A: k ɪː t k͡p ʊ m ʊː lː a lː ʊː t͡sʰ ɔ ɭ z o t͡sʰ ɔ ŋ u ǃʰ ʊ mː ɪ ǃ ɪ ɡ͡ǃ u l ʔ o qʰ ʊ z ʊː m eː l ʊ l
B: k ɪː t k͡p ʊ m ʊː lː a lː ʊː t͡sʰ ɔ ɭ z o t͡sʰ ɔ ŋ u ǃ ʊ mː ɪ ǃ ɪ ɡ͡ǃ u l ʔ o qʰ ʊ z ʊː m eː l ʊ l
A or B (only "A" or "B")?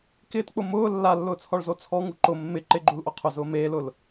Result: B